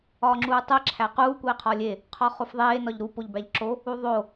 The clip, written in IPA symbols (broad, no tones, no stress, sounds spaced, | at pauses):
ɒː ŋ͡ǁ uː tˤ e ǁʰ æ q uː kʷ eː qʰ ɒː lʲ e | qʰ ɒ χ o f ðˤ eː n ɒ ʎ ɾ u p o ʎ b æ ʎ ǁ o | u ðˤ o